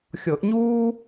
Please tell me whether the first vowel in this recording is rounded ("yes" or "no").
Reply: no